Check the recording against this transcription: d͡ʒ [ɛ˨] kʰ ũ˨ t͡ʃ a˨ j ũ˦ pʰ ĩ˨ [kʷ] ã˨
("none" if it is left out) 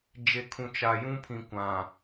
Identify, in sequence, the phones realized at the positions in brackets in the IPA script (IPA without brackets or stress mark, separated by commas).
e˨, kʷ